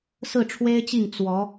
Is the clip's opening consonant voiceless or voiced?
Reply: voiceless